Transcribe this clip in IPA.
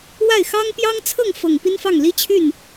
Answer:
wa˥˩ɪ̯ xɑ˥ŋ pjɑ˥ŋt͡sʰɤ˥˩ŋfɤ˨˩ŋ pi˥nfɑ˥˩ŋ li˥t͡ɕʰy˥˩n

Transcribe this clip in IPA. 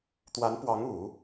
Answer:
t̪wa˧˥npwɑ˧˥ŋu˨˩˦

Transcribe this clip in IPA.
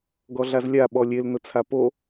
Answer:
ɡɔɮazlʲa ɓɔlʲel nʊt͡sʰapo

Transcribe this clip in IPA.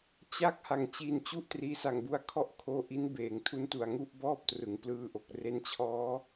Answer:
t͡ɕa˦˥k̚ ha˩˦ŋt͡ɕi˨˩nt͡ɕu˦˥ʔ triː˧sa˨˩ŋbu˧a̯ kʰɔ˥˩ʔkʰoː˧ ʔi˦˥nbeː˨˩ŋtʰu˦˥ntu˨˩a̯ ŋu˥˩ʔbɔː˥˩p̚trɯ˩˦ŋ plɯː˧ʔo˨˩k̚ re˦˥nt͡ɕʰɔː˦˥

